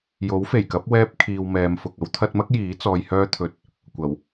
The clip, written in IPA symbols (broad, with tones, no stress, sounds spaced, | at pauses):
j o˨˥ w f e˨˩ j k ɐ˨˥ p̚ w ɛː˧ p̚ kʰ iː˨ w m ɛː˨˧ m f ʊ˨ k̚ ɐ˥ w t̪ʰ ɐ˧ t̚ m ɐ˥ k̚ j iː˨˥ t͡s ɔː˧ j h œː˥ t̪ʰ ɵ˧ t̚ | kʷ ɐ˨˩ w